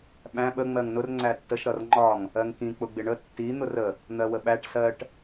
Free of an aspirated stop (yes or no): yes